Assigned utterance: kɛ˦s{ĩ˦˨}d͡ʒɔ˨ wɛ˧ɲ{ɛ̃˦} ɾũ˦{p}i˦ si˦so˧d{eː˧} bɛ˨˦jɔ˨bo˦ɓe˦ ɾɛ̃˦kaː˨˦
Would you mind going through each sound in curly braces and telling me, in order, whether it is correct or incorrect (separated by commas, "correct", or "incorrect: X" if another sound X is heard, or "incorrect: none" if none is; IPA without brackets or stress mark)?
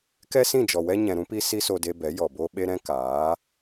correct, incorrect: ɛ̃˨, correct, incorrect: e˧